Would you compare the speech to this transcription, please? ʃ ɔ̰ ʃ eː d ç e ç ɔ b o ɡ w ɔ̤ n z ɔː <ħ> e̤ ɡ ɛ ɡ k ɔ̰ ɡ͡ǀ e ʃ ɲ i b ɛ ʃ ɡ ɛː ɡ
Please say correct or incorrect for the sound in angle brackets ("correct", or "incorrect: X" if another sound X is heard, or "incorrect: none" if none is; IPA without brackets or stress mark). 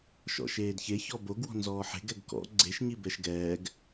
correct